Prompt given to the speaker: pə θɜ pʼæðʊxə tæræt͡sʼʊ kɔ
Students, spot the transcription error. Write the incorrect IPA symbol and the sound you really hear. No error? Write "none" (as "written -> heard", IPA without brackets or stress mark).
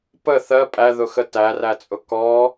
none